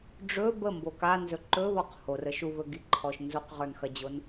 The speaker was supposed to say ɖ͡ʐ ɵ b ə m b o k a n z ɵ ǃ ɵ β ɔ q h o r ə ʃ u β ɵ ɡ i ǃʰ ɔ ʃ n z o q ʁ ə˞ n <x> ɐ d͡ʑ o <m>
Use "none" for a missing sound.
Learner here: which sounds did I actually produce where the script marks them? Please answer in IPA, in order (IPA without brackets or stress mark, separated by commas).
x, n